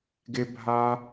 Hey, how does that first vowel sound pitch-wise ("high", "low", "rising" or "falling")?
high